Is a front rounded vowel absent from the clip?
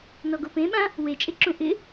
yes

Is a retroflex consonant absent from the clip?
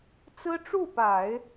no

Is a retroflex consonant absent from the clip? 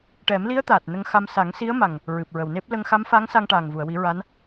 no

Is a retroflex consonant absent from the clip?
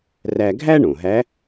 no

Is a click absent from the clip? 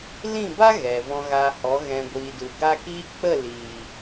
yes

